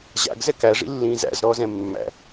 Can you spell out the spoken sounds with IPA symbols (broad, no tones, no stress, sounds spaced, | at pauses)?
ʑ a̰ ɡ z ɛ k æ ʐ ḭ lː ĩː z æ̰ z ɾ ɔː z ɛ̃ mː æ̰